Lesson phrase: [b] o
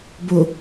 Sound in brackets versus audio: correct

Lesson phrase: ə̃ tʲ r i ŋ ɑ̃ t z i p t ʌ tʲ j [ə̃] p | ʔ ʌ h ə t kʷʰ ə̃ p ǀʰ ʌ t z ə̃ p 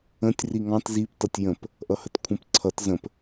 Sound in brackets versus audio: correct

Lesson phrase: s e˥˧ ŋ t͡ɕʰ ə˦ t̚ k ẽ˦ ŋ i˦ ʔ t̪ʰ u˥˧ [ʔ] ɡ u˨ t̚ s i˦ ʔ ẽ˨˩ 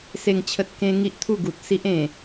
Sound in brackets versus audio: incorrect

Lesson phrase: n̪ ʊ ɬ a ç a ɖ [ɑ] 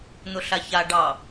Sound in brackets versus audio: correct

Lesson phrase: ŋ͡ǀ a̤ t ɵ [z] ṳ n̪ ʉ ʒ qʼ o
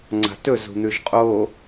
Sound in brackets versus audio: correct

